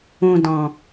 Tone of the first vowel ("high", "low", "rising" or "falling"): low